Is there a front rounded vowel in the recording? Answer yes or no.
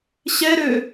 yes